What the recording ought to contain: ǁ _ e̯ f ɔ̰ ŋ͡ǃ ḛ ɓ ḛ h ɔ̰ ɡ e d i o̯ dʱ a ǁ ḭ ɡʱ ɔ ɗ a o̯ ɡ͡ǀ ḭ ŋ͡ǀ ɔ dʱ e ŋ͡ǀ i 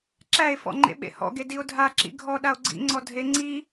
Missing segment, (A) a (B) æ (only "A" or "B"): B